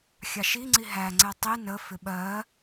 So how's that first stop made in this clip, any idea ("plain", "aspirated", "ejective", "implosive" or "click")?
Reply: click